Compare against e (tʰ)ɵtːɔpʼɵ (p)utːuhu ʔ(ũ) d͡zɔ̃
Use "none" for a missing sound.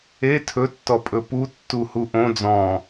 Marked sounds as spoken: tʰ, p, õ

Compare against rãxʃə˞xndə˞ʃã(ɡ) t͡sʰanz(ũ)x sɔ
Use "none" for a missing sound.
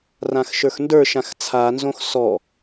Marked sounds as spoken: x, õ

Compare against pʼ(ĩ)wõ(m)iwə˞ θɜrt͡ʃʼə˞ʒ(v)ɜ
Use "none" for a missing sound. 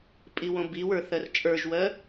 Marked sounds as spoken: i, b, w

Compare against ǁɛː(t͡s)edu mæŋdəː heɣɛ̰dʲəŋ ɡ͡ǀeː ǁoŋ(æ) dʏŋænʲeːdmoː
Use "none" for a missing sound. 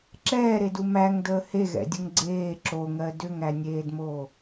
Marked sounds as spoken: ɾ, ɜ

